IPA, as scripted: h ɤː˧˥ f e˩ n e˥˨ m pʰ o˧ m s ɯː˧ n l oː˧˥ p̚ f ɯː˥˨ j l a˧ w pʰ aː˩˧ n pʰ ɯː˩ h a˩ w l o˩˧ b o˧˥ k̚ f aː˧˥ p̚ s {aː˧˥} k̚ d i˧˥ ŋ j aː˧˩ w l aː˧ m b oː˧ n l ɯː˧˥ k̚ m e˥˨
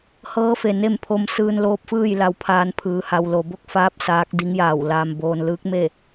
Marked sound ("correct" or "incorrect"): correct